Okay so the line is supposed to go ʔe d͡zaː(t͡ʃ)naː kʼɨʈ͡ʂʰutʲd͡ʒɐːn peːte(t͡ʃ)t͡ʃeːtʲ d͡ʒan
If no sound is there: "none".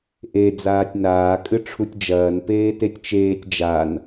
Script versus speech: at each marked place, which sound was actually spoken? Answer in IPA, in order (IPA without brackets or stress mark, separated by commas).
tʲ, tʲ